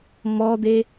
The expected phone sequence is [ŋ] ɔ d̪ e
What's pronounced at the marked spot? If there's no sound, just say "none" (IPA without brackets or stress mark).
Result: m